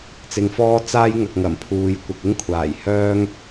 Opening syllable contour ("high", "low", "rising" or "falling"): low